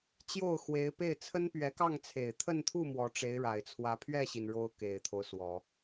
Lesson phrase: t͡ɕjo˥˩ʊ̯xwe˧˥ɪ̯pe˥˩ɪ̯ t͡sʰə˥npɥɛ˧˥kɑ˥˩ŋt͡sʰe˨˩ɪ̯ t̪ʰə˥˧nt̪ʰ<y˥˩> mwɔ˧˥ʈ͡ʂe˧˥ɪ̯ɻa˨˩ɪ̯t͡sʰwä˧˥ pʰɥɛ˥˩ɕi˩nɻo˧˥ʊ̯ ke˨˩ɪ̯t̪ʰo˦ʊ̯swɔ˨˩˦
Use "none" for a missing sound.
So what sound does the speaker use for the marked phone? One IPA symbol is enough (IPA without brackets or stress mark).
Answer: u˥˩